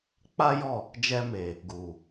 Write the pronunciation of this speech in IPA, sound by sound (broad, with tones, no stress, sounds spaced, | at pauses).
k͡p a˦ j ɔ˦˨ | d͡ʒ ɛ˧ m e˨ | ɡ u˨